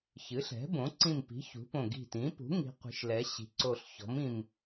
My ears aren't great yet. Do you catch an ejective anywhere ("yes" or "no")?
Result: no